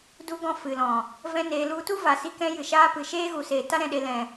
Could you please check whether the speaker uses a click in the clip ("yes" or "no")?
no